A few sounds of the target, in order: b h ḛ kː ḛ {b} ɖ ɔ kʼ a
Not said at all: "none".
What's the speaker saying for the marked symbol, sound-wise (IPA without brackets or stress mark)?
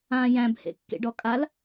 none